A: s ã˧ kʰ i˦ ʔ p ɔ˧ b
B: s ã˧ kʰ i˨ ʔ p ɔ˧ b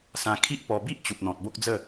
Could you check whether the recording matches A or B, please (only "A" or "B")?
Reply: A